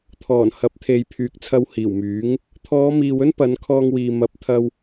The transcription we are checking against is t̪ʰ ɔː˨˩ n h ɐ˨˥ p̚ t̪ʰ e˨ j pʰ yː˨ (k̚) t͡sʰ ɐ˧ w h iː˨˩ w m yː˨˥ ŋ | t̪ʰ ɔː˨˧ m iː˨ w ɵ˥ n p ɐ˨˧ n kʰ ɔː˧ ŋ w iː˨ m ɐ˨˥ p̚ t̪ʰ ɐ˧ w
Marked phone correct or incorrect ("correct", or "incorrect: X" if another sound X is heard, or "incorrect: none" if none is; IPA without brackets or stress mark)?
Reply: correct